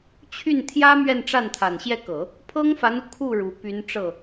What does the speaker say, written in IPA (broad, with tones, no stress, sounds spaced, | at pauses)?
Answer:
t͡ɕʰ y˥˩ n t̪ʰ j ä˥ m ɥ ɛ˥˧ n ʈ͡ʂ a˥˩ n t̪ʰ a˨˩ n ɕ j ɛ˥˩ k ɤ˨˩˦ | pʰ ɤ˥ ŋ f a˧˥ n u˧ kʰ u˥˩ ɻ u˧˥ p y˧˥ n ʈ͡ʂ ɤ˥˩